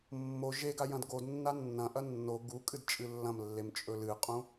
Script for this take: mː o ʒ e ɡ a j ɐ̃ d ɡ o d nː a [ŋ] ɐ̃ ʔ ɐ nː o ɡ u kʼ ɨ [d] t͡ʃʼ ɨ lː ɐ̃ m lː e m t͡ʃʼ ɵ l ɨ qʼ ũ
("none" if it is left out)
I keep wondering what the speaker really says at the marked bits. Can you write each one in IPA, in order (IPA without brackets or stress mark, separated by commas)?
nː, d